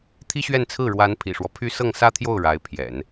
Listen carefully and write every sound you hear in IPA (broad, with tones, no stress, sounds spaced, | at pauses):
t̪ʰ i˥ ɕ ɥ ɛ˥˧ n t͡sʰ ɹ̩˥˩ ɻ w a˧˥ n pʰ ḭ˨˩ ʂ w ɔ˦ pʰ y˥ s ɤ˥˩ ŋ s ä˥ t̪ʰ j o˥˩ ʊ̯ ɻ a˧˥ ɪ̯ pʰ j ɛ̰˨˩˦ n